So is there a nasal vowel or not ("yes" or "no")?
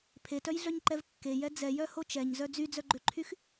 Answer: no